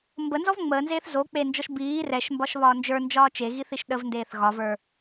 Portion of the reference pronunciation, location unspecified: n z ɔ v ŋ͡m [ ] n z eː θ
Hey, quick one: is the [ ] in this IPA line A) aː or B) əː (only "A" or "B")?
B